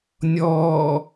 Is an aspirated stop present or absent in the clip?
absent